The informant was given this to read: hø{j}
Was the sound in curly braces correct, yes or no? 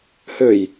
yes